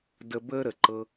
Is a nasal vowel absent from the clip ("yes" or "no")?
yes